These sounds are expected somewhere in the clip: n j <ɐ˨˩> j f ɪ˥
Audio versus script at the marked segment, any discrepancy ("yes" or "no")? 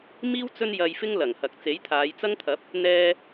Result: yes